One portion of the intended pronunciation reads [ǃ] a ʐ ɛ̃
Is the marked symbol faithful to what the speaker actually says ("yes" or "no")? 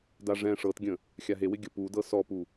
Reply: no